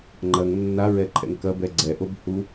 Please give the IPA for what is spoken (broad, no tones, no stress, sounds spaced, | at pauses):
ŋ͡ǃ ɐ ŋ nː a ɹ ɛ ǃʰ ɛ̰ ŋ k ɐ b ɛ ɡ͡ǀ ɛ ʔ o b h u